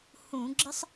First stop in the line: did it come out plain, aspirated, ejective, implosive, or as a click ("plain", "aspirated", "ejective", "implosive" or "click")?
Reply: click